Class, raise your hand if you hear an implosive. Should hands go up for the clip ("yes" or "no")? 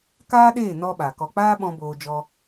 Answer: yes